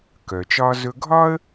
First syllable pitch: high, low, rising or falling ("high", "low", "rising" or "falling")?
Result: low